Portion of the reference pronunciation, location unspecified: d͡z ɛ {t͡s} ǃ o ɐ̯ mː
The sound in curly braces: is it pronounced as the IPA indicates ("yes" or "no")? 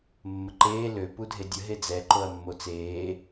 no